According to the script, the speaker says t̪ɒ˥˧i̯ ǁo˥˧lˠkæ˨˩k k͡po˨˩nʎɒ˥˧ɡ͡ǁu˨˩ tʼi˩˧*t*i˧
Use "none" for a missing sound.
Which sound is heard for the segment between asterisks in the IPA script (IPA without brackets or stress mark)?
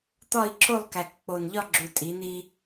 n̪